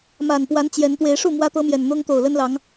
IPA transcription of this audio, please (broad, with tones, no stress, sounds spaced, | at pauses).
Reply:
m a˨˩ n p w a˨˦ n t͡ɕ j ɛ˨˦ n t̪ w e˨˦ ɪ̯ ʂ u˥˨ m w ä˦ t̪ ɤ˦ m j ɛ˨˩ n n̪ ʊ˦ ŋ t̪ o˨˩ ʊ̯ l ə˦ n l ɑ˨˦ ŋ